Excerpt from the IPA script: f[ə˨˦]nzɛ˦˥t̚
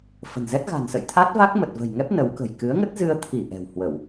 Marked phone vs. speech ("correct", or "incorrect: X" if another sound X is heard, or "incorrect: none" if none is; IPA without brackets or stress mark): incorrect: ə̤˨˩